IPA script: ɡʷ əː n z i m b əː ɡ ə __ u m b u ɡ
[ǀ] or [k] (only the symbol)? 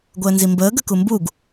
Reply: k